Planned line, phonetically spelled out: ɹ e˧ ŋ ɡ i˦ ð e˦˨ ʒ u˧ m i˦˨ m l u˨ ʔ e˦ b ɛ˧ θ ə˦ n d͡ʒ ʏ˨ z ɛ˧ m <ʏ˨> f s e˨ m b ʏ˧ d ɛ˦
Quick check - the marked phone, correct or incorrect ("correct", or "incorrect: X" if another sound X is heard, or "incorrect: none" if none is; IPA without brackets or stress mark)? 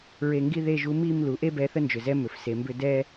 correct